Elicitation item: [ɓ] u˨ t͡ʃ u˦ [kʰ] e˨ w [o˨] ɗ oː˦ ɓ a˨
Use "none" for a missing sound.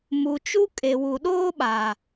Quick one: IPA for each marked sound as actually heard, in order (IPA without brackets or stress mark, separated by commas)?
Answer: m, kʼ, u˨